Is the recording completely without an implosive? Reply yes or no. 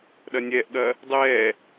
no